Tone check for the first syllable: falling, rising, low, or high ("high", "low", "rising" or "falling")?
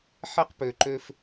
high